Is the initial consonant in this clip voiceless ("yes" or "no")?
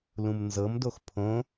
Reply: no